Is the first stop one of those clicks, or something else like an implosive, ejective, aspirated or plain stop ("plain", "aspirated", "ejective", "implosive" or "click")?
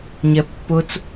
plain